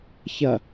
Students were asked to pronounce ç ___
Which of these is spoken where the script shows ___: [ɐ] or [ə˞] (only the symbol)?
ɐ